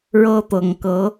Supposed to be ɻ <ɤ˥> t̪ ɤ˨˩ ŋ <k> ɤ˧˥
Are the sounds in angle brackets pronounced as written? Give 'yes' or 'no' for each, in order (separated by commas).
yes, yes